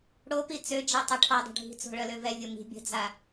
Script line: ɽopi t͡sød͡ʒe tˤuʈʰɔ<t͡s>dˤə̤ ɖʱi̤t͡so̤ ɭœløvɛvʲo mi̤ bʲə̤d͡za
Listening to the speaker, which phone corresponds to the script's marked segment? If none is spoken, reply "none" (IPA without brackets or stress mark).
none